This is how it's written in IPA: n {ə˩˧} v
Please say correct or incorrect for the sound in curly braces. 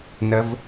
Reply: correct